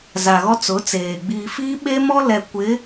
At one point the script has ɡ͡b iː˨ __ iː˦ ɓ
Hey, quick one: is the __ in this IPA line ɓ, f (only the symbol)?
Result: f